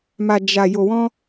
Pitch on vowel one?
low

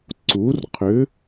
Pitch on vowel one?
rising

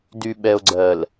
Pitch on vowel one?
low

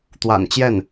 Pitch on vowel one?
low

